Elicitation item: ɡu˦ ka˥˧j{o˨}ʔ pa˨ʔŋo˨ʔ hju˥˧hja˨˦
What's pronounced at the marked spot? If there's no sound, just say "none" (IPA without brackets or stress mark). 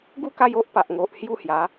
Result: o˦